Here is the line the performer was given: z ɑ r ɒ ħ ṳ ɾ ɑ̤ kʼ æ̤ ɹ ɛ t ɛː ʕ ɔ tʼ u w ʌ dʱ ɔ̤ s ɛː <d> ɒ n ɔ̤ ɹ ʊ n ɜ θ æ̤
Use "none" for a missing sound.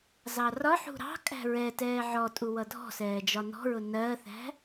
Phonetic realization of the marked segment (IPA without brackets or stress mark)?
d͡ʒ